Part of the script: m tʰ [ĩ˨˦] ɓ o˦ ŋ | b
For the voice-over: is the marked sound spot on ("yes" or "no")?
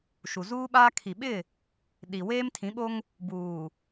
yes